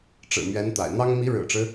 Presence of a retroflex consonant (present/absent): present